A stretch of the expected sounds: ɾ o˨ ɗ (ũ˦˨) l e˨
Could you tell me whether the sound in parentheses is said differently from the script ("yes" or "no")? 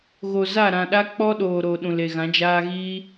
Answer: yes